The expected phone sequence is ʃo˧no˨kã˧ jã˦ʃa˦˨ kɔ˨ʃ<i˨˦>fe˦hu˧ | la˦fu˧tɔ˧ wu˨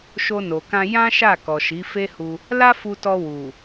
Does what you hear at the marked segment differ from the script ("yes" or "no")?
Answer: no